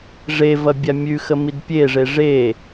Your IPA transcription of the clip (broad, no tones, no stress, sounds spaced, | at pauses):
ʐ e v ɐ bʲ a mʲ ʉ x ə m i d pʲ e ʐ e ʐ e